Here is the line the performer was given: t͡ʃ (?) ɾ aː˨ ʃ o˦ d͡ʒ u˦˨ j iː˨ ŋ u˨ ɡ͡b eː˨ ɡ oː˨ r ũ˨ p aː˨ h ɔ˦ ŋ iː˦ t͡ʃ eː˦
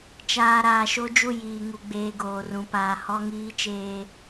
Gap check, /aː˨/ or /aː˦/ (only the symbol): aː˨